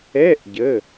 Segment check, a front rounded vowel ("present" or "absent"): absent